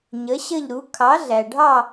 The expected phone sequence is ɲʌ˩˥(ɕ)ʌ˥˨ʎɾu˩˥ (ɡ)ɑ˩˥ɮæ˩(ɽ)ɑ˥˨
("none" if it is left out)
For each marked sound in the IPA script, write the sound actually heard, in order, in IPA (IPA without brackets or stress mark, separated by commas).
ɕ, kʰ, ɖʱ